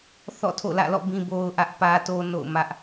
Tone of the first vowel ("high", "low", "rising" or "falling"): falling